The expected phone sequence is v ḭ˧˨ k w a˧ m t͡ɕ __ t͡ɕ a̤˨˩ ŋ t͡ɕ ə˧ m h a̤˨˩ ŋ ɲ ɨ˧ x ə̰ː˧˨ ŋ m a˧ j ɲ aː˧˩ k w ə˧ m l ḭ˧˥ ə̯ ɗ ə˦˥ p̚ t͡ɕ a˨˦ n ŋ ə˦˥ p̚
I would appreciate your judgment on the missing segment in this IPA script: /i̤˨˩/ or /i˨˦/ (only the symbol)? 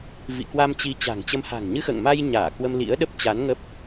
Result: i˨˦